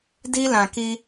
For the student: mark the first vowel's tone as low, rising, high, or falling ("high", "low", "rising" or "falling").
high